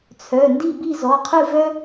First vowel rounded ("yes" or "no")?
yes